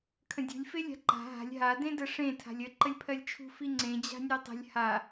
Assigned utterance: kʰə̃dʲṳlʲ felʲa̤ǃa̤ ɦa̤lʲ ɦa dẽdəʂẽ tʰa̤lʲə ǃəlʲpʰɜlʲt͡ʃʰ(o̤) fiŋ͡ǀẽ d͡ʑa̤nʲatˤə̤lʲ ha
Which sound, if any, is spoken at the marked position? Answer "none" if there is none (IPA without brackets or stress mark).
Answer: ṳ